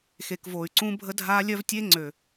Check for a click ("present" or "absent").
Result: present